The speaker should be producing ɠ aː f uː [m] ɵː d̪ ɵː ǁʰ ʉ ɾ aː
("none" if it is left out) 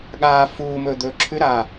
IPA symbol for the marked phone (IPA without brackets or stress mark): m